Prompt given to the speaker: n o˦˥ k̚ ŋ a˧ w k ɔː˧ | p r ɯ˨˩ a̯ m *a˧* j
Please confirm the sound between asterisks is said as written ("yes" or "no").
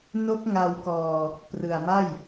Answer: no